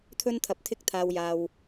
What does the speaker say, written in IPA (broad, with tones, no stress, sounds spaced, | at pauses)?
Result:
t̪ʰ ɵ˥ n t̪ʰ ɐ˧ p̚ t̪ʰ ɪ˥ k̚ t̪ʰ aː˧ w j aː˧ w